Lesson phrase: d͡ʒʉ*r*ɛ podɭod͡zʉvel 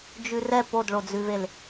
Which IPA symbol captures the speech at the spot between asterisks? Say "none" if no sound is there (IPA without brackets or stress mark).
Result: r